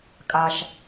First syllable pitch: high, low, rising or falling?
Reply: low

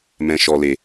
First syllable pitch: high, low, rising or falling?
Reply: low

